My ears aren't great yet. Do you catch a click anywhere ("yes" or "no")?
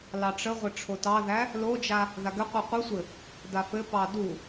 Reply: no